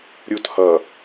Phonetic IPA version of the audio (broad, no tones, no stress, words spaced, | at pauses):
ɾʲut hʌ